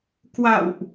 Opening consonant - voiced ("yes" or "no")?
no